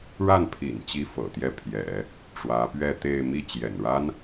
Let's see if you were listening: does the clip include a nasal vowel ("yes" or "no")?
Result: no